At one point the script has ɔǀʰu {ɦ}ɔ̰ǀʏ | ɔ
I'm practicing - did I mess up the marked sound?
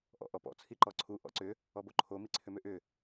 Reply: yes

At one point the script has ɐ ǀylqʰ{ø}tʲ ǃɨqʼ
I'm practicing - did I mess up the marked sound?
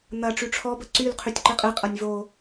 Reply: yes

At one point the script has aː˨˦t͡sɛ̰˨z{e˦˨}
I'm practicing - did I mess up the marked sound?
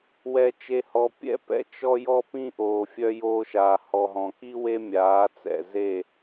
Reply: no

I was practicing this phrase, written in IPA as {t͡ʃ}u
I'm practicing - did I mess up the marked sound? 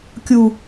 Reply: yes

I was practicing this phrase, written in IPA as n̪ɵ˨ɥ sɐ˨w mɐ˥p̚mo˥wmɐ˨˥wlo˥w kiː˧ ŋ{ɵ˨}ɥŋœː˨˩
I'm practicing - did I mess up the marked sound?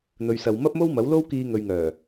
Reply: no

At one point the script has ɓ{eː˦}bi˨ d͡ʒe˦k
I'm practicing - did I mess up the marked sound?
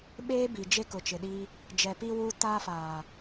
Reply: no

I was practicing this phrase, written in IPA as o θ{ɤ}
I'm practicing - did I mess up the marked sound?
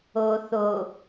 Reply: yes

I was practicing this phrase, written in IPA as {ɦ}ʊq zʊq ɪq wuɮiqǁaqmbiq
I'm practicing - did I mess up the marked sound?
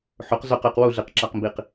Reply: yes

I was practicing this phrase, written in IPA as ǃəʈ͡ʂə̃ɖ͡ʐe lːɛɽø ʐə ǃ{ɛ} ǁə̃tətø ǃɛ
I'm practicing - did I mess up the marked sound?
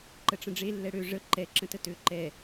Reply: no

